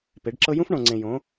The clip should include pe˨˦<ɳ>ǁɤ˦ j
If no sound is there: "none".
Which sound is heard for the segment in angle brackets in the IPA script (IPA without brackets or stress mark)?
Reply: ɖ